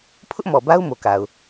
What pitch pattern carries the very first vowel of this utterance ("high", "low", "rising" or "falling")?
high